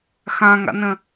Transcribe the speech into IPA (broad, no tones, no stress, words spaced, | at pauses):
xãŋa̰nə̃